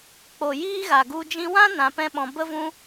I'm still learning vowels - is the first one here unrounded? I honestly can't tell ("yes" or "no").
no